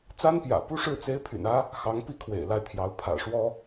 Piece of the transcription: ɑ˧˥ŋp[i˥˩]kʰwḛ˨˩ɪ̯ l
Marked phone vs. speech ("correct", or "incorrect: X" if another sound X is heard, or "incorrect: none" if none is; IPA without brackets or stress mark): correct